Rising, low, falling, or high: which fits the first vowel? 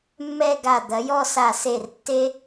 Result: falling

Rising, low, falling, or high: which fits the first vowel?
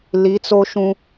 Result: rising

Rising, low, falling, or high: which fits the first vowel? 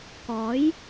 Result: rising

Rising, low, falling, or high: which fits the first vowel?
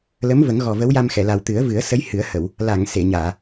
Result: rising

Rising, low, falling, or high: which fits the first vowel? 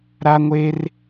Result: high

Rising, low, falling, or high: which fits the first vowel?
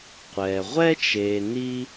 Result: low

